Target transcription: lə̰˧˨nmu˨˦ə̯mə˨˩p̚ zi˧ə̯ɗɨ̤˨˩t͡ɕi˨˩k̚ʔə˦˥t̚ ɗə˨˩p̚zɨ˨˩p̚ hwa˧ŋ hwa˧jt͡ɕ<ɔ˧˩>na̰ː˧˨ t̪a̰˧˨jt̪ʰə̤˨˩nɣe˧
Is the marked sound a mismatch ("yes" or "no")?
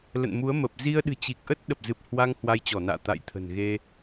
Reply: no